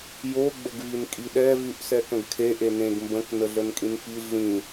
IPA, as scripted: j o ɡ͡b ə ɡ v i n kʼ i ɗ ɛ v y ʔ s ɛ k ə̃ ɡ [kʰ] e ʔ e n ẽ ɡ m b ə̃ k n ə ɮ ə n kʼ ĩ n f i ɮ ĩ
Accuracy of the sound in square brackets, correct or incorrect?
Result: correct